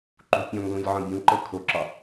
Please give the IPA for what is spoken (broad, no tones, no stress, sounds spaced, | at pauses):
ǃ ṳ pʲ ɔ̃ ŋ l ũ lʲ ʕ ɔ̃ bʲ ũ ǃ ɤ kʰ o ǁ ɒ